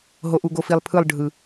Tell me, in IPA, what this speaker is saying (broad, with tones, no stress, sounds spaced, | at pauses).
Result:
ɦ o˨ ʔ u˨ ɡ o˨ f i˨ lˠ pʰ ɯ˦˨ lˠ ɖʱ ɯ˨